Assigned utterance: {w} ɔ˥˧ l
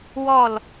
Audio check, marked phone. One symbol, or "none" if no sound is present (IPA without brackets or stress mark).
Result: w